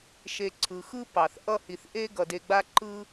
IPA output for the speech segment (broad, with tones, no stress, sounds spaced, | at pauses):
ʃ e˨ ǀʰ ɯ˩ x ɯ˦ p ɑ˩ θ ʔ ʌ˦ h i˨ θ ʔ e˥ ɡ ʌ˩ d e˨ ɡ͡b a˦ ǃ ɯ˦